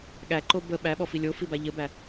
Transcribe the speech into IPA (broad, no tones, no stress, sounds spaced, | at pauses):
ɠ æ ǃ o b ə ɓ æ ɓ ɔ f i lʲ o f i b a ʎ ə b æ